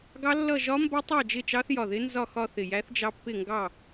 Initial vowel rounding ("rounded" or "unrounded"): unrounded